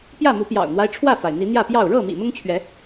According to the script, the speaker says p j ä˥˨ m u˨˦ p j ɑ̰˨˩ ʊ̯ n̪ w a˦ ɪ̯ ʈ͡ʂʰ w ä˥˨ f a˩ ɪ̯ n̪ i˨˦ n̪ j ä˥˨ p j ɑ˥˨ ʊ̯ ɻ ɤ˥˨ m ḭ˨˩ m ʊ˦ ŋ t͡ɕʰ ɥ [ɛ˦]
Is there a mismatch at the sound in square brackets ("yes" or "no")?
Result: yes